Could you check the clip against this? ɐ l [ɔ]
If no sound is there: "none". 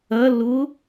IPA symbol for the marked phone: ʊ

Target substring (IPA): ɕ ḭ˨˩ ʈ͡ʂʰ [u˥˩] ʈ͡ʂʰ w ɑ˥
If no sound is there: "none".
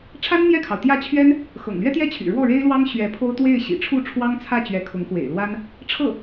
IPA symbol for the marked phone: u˥˩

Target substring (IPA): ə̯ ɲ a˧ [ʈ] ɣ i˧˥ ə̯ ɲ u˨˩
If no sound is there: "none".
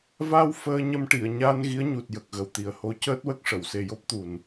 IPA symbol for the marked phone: n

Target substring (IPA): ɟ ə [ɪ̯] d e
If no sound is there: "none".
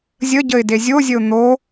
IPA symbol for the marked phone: ɪ̯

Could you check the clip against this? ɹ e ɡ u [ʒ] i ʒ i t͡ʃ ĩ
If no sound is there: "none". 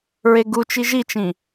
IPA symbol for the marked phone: t͡ʃ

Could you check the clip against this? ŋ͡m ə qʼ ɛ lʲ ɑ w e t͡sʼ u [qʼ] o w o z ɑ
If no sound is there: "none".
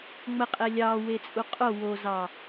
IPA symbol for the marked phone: qʼ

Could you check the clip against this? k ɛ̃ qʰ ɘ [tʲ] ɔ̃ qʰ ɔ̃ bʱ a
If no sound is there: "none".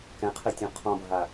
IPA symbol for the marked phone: tʲ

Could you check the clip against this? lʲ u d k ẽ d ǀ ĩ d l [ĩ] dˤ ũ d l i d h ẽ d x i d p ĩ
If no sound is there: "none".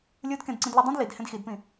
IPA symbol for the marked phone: i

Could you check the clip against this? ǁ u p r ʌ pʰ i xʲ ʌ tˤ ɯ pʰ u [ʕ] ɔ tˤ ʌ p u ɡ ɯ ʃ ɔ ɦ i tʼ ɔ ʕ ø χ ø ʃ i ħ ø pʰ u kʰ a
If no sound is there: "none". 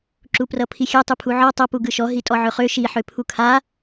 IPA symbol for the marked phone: ʕ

